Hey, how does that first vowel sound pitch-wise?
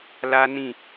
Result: high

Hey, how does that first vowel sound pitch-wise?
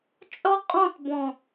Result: high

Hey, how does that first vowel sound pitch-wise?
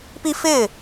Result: high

